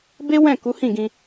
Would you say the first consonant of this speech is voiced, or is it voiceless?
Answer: voiced